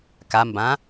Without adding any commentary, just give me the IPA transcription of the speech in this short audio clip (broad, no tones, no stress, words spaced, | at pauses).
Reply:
kambã